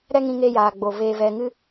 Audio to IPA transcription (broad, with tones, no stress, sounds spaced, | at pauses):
ɾ ɛ˦ ŋ ĩ˧ ŋ eː˧ j aː˨ ɡ͡b o˨ v eː˨ v ɛ˨ ŋ ɨ˧